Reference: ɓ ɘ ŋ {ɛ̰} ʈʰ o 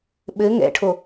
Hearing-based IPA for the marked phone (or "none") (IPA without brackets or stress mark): ɛ̰